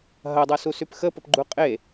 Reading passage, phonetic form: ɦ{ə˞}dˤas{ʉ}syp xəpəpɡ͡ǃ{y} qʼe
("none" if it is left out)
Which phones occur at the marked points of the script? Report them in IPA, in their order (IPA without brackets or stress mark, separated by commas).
ɐ, u, u